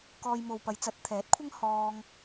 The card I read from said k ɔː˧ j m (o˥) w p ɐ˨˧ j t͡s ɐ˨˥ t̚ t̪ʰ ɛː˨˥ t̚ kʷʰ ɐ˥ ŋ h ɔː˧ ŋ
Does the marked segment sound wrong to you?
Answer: yes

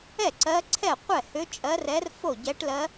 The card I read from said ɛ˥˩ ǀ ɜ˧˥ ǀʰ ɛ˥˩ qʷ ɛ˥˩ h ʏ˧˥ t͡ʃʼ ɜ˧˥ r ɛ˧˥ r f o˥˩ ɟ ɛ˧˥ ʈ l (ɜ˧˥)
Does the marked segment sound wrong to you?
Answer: no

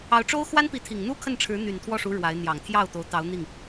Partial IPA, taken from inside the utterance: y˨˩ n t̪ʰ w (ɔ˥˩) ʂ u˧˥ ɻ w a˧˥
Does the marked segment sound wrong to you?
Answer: no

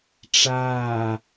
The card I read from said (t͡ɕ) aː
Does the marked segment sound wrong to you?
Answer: yes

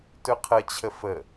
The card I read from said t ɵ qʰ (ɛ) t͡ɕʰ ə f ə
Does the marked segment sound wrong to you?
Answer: yes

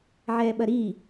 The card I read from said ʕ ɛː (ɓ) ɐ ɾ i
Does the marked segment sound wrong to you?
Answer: no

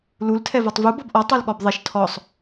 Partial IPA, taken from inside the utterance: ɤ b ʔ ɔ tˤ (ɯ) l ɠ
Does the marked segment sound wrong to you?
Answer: no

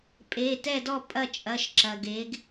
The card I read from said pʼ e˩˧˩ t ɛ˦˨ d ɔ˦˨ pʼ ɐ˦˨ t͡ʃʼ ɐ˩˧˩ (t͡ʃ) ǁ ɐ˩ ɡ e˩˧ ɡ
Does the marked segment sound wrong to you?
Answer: yes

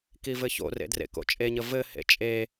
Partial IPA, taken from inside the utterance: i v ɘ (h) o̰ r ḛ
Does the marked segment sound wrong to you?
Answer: yes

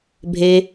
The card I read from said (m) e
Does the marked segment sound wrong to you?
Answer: yes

